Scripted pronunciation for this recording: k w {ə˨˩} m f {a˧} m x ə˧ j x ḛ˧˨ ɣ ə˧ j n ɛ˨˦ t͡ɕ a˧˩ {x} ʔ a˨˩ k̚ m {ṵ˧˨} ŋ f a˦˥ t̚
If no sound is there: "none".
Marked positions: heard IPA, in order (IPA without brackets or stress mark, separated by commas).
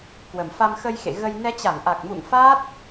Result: ə˨˩, a˧, ŋ, ṵ˧˨